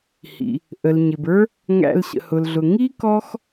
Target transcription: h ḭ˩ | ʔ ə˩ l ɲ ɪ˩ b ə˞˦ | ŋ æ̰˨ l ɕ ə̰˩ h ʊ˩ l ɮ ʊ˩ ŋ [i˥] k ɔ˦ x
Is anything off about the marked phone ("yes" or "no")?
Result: no